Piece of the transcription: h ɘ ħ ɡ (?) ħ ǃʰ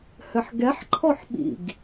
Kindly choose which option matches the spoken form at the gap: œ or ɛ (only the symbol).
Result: ɛ